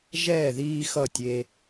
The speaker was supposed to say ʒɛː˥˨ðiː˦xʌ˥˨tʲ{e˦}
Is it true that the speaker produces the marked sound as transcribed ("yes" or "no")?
yes